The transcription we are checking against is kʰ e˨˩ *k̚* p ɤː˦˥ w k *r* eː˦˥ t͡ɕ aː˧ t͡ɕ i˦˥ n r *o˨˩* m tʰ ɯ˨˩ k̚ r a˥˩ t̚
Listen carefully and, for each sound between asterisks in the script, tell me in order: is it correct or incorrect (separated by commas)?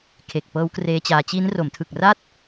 correct, correct, incorrect